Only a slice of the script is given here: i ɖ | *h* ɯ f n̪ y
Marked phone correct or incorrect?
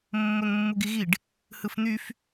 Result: correct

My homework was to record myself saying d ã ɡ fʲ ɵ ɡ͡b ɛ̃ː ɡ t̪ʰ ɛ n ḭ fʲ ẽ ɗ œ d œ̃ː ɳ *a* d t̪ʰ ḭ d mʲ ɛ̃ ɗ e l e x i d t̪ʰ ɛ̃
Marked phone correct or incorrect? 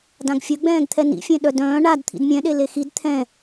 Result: correct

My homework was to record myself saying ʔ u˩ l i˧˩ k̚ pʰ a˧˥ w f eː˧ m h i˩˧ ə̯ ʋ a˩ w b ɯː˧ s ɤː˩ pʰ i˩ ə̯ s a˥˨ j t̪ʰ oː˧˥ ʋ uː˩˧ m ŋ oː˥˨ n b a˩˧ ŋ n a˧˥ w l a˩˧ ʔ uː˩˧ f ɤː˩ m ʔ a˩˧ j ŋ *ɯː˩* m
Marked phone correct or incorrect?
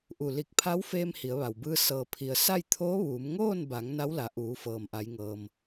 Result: incorrect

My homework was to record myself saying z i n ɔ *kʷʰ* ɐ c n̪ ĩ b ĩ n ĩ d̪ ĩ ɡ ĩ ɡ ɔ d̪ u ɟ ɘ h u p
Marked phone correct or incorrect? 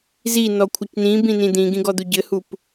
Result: correct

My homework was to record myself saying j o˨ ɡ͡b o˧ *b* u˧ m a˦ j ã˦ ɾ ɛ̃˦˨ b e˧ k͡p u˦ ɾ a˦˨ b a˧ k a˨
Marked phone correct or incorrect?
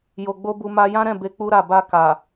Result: correct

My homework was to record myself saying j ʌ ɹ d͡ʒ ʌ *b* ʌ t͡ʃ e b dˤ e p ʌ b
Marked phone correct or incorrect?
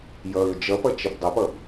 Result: incorrect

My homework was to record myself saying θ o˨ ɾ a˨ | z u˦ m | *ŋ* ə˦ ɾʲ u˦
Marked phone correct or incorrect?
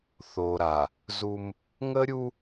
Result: correct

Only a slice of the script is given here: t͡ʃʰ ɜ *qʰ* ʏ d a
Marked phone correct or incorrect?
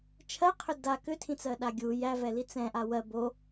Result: correct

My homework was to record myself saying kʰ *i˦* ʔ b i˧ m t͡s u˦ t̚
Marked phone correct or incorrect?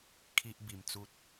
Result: correct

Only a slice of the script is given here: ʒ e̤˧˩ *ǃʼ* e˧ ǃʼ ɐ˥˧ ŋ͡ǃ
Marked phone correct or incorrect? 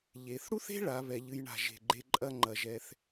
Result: incorrect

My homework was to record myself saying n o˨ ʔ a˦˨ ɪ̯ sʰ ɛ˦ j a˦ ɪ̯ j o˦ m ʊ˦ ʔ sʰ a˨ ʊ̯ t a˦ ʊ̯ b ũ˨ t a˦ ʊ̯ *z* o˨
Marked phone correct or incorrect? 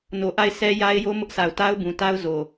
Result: correct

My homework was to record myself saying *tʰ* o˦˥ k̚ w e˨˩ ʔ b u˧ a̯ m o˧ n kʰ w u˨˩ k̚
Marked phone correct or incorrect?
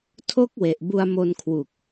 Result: correct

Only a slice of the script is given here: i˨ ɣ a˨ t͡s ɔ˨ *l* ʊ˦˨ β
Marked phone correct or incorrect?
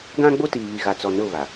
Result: incorrect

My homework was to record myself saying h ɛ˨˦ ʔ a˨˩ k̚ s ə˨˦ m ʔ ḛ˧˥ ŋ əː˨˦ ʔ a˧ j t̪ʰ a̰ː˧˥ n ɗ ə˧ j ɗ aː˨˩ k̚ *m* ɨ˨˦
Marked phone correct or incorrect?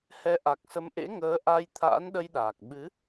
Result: incorrect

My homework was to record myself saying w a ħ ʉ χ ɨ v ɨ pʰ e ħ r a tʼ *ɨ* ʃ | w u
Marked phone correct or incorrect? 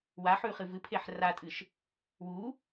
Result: correct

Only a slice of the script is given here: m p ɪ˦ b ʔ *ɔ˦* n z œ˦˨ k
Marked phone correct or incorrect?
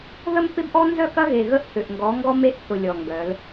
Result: correct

